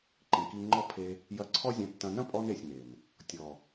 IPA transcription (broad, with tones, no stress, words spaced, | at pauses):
ǃĩ˨ki˧ŋ͡ǃɔ˦ pʰe˧ | jɐ˧ǀʰɔ˦zʲɐ̃˧tːɐ̃˧ nɐ̃˦pʼɔ˧ne˨sʲ ne˨n | tʲɔ˨